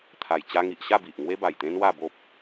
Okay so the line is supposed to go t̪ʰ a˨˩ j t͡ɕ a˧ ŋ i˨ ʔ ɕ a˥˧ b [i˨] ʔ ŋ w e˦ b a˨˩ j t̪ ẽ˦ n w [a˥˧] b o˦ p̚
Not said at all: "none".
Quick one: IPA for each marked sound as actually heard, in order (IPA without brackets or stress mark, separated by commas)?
i˨, a˥˧